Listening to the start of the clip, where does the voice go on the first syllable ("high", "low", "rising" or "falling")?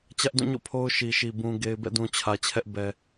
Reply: high